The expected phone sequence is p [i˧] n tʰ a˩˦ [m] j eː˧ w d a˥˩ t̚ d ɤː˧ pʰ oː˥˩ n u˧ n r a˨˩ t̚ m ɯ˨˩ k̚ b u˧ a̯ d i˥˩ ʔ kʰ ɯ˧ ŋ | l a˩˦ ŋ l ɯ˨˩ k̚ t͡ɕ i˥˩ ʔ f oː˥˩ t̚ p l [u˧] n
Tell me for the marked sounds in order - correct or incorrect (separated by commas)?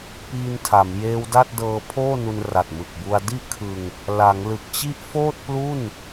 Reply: incorrect, correct, incorrect